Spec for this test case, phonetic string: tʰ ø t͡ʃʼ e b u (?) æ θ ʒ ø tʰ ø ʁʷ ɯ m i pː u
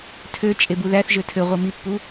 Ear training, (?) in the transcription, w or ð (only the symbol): ð